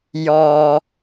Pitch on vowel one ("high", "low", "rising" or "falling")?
low